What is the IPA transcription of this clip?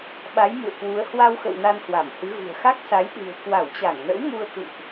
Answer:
ɓa˨˦jmṵ˧˨ə̯kwu˨˦ə̯ hwa˧wxə̰˧˨w na˧nhwa˧˩mhɨ˨˦ ɣṳ˨˩ə̯xa˦˥k̚sa˨˦j ɗɨ̤˨˩ə̯ kwa˧˩wt͡ɕa˧˩ŋnə̰˧˥w mu˧ə̯kṵ˧˨ʔ

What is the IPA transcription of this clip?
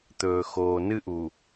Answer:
t̪ɵː˨xoː˨ nɨ˦ʔu˨

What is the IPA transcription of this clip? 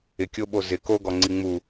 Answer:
ɪkʲoɓo zɪ koɡɔŋ͡ǀi ŋ͡mu

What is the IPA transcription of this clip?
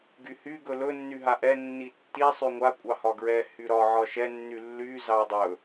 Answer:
ɡyhy ɡɵlɵ nːyɦaʔɛ nːitːi sˤyŋʷa kʷʼɑhɒɡɹɛ hyɾɒ ʕɒʃɛ nːylːy zɑdˤɵ

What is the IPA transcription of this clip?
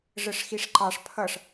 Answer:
ʐəʂxiʂǃɑʂ pʰʌʂ

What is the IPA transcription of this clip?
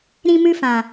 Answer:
ɾĩ˧mɨ˧fã˨

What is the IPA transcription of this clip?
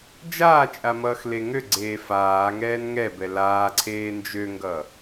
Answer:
d͡ʒaːt͡ʃʼa mʌːxleŋøɡ͡ǀeː faːŋɛːn ŋɛbɛ laːǀʰeː nd͡ʒøŋɡʌ

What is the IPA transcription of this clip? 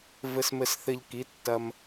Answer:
vɘ˧smɘ˧sθɘ˧ʎki˩˥ tːɐ˧m

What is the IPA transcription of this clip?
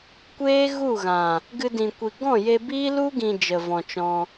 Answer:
kʷeː˦ɣu˦˨ɣã˨ | ɡɨ˧dĩ˨kʷi˨ ɡɔ̃˦˨je˧biː˦ lu˦ɡĩ˨ d͡ʒə˨vɔ̃˨t͡ʃɔ̃˧

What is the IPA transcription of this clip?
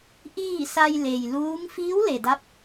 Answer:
ʔiː˥˨sa˧j le˩jluː˧˥ŋ fiː˧˥wle˩da˧˥p̚

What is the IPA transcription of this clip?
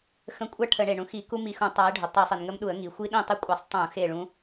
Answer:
xə̃˧˩kʷʼa˥˩ ʈʰə˧˩˧ɳe˩ɳũ˨˦xi˧˩˧ ku˦˥ mi˧˩xũ˧˩˧tˤa˨˦ɪ̯ɖʱʊ˩ tˤi˧˩˧sˤi˩nŋə˦˥mɗu˧˩˧ə̯ ŋi˩ xʷi˦˥ɗĩ˥˩tˤi˥˩kʷʼe˧˩˧sˤ tˤũ˧˩˧xe˧˩ɭũ˨˦

